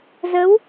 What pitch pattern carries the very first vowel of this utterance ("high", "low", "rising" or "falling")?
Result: rising